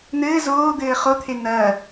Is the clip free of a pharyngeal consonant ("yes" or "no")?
yes